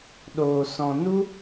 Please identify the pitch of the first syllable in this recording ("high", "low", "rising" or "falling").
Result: low